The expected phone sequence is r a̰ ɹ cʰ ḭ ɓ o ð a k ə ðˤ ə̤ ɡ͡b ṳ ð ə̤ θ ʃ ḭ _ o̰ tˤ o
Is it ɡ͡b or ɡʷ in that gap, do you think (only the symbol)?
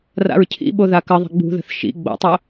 ɡ͡b